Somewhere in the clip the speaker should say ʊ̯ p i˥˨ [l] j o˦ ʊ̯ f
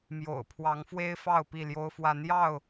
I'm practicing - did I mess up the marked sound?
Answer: no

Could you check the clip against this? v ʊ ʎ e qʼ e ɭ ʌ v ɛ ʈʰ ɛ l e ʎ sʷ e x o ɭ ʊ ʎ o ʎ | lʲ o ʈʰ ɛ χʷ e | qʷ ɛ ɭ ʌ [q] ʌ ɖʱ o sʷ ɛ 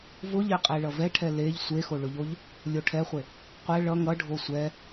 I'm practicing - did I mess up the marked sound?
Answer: yes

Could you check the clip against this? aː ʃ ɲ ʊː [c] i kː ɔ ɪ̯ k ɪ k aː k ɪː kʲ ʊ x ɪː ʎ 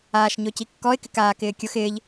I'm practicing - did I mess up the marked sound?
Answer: no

